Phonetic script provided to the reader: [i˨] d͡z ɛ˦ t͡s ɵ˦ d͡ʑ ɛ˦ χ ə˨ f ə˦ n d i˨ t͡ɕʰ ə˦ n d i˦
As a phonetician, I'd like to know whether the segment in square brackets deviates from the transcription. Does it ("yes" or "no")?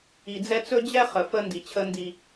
no